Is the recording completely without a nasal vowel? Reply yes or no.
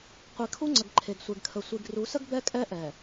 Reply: yes